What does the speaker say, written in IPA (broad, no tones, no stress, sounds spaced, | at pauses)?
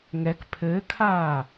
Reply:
ŋ ɛ k pʰ ɘː kʰ aː